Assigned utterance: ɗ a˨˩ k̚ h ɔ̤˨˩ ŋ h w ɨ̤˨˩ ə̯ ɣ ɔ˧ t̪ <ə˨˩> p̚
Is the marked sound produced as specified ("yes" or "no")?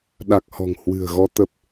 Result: yes